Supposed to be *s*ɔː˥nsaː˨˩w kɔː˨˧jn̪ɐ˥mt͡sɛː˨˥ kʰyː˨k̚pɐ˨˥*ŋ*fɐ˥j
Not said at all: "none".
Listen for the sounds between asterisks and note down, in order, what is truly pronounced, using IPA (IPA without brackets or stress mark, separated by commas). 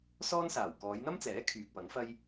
s, ŋ